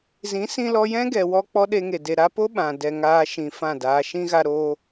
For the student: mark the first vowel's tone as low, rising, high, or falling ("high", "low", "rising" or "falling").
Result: rising